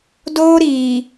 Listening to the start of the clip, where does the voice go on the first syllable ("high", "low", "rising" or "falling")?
high